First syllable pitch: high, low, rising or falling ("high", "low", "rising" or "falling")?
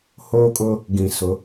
high